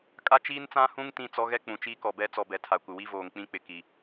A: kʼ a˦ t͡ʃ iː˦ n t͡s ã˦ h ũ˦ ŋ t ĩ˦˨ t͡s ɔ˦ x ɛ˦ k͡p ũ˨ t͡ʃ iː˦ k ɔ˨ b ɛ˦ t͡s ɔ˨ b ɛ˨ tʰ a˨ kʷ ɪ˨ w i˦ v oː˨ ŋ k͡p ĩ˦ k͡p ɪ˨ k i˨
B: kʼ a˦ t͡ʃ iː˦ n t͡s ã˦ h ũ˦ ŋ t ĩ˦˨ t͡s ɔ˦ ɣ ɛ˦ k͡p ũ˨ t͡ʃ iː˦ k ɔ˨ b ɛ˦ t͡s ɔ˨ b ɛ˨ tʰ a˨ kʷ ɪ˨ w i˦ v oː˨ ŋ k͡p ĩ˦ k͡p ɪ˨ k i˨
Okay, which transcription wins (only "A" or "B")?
B